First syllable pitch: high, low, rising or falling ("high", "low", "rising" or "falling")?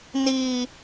high